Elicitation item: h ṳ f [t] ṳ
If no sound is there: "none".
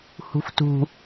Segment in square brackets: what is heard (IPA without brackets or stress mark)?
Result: t